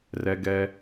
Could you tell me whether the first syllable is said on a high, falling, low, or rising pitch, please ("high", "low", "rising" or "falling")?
low